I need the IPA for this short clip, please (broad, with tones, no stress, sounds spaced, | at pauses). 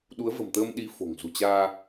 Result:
ɗ u˨˦ ə̯ v ə̤˨˩ m t̪ əː˧ m ɗ i˨˦ f o̤˨˩ ŋ z ṳ˨˩ t͡ɕ aː˧